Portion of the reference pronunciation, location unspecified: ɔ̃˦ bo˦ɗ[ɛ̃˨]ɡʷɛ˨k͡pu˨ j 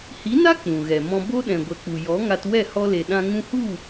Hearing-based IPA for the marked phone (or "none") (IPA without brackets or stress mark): ɛ̃˨